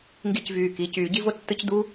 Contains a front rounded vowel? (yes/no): yes